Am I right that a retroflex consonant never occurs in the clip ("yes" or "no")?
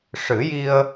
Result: no